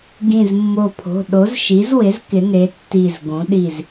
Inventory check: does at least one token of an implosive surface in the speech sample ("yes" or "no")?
yes